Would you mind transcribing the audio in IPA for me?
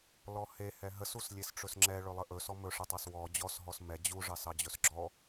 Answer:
lɔhehɛ ɦəsus lʲesʈ͡ʂɵsŋ͡ǁɛ ɭɵlˠəʔɵ sɔmɵʂɛtˤɑs wɔ d͡ʑɔsɦɔs mɛ d͡ʑuʐɑs ɑd͡ʑɵsɡ͡ǁɔ

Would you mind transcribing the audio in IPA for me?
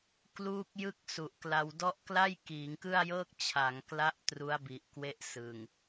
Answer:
kluː˥˩k̚jɯ˥˩k̚ su˨˩ʔkla˧w dɔ˦˥ʔkla˥˩j kiː˩˦ŋkɯ˥˩a̯jɤː˥˩k̚ t͡ɕʰa˩˦ŋ kla˦˥ʔ tru˦˥a̯bi˨˩ʔkwe˦˥ʔsɯ˨˩ŋ

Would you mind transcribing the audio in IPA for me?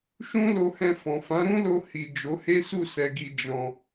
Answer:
ʃũ˦lo˧hɛ̃˧ fɔ̃˨fã˨˦ɾũ˦lo˧ hi˨ d͡ʒo˨˦he˦su˦˨ sɛ˨ɡi˨ d͡ʒɔ̃˧

